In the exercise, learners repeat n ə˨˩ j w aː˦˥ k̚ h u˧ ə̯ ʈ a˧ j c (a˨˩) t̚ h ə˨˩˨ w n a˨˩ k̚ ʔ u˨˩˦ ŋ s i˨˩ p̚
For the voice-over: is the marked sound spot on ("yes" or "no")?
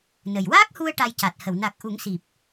yes